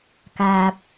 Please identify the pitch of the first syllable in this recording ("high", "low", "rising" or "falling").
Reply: low